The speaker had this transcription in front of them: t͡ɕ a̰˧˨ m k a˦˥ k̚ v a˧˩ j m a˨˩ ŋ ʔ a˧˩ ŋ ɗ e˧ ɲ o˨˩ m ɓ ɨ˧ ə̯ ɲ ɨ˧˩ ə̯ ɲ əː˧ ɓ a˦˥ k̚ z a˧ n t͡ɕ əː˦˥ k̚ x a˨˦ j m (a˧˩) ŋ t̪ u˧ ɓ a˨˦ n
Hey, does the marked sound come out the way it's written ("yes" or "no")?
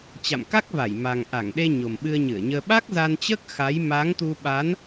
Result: no